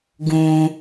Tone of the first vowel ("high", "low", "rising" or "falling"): high